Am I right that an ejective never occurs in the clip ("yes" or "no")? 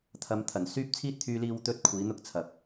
yes